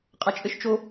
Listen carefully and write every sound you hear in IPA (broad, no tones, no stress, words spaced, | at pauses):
qʼɐt͡ʃʼɘʃt͡ʃo